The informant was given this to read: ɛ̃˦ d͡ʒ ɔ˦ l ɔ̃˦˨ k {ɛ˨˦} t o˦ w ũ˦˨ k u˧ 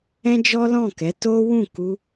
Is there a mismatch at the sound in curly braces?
no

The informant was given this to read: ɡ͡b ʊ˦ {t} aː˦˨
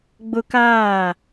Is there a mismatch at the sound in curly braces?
yes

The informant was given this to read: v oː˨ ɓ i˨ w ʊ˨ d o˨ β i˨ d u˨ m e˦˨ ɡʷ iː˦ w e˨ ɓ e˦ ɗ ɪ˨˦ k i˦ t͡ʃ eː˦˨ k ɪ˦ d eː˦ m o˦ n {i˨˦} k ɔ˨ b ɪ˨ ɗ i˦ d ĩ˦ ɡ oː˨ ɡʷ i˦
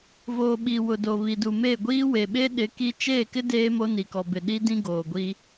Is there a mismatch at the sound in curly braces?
yes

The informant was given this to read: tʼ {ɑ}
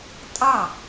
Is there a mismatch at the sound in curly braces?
no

